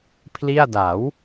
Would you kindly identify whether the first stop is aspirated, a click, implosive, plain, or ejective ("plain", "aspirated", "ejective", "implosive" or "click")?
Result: aspirated